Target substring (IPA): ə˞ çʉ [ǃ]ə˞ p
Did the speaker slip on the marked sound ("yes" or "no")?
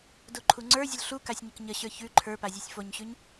yes